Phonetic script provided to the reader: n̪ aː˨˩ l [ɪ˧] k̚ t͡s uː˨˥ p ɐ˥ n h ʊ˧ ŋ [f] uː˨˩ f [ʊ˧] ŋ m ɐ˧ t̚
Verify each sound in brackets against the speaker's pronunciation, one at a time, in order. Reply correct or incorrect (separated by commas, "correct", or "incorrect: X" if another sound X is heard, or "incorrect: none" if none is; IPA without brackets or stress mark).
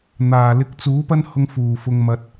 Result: correct, correct, correct